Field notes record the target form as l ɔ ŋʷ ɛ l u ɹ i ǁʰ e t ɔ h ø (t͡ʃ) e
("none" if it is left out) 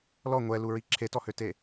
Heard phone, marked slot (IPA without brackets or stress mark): t